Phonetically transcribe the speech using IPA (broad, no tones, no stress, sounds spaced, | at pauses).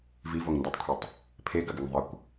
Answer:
v i v o ŋ n d e tˤ kʷʰ i tˤ | pʰ e ɡ ɐ ɡ ɘ ŋ ðˤ ɘ kʷ